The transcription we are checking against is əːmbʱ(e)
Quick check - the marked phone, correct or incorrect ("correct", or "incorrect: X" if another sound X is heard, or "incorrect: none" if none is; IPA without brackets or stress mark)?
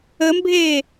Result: incorrect: eː